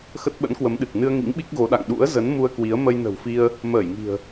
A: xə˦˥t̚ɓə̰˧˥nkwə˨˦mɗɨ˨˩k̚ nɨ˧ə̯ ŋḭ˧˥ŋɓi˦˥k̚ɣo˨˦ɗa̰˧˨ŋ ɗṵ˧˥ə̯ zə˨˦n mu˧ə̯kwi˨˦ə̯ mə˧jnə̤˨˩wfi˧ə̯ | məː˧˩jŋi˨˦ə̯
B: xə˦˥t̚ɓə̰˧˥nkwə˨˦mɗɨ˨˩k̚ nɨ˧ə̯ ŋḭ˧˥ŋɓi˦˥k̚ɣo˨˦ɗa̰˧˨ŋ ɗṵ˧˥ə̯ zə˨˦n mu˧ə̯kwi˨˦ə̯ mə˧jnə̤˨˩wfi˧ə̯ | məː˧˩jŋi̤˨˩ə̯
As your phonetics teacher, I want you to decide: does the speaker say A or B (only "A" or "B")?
B